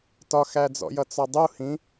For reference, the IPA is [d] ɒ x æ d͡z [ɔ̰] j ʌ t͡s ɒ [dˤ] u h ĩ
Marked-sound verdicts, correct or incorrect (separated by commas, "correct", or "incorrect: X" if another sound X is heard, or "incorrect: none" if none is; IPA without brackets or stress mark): incorrect: t, correct, correct